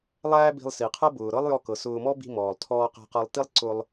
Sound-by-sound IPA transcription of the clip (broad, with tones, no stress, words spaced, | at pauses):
lˠæː˥bi̤˧lˠsi˩qʰɤ˥ bʊː˩ɾɤ˥lˠjɔ˧kɤ˩ sʊː˧mɔ˥ bi̤˧mɔː˩lˠtʰɔː˧ qæ̤˧qɤ˧lˠti˥lˠ ǀʊ˧lˠ